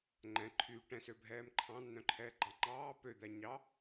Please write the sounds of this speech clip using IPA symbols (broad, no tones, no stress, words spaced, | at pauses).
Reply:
ŋ͡ǃɛ̃ǃʰyː ʈɛ̃søbʱɛːm ǃʰɑ̃nːœ̃ǃʰɛːɡ͡ǃɑ ŋ͡ǃɑː pød̪æɲɑ